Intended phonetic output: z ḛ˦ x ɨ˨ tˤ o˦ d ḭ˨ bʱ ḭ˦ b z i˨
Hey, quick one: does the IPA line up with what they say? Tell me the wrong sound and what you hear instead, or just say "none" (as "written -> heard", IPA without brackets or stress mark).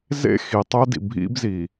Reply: ɨ˨ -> i˨